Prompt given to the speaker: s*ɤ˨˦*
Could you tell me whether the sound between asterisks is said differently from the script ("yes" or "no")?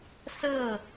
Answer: yes